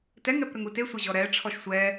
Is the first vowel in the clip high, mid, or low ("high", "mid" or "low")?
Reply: mid